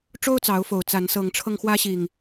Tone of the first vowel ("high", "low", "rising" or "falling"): high